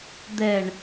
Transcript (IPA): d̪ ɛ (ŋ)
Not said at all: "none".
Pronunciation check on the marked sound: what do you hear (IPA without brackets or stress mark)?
ɳ